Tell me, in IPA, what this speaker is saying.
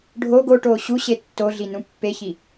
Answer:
ɖʱ o ɡ o ʈ oː ɕ u ɕ e tː o ɮ i n ũ pː e ç i

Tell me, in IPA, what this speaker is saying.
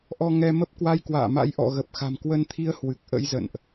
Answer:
ʔ ɔ˧ ŋ ɛ˧ m ə˦˥ p̚ k w a˧ j k w a̰ː˧˨ m a̰˧˥ j ʔ ɔ̰˧˨ ɣ ə˨˩ p̚ x a̤˨˩ m k w ə˧ n t̪ʰ i˧ ə̯ h w ɨ˨˩ k̚ ʔ ə̰˧˥ j z ə̰˧˨ n ʔ

